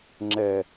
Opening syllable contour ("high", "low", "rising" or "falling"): low